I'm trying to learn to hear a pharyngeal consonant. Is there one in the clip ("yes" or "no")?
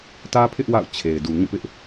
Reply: no